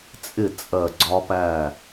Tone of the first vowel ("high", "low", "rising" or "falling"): falling